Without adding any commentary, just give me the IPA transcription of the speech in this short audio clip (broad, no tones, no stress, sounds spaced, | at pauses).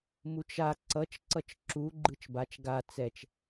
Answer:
m u t͡ʃ a ǀ ʌ t͡ʃ ǀ ʌ t͡ʃ ǁ u ɡ͡ǃ ɯ t͡ʃ b a t͡ʃ ɡ a t͡s ɛ t͡ʃ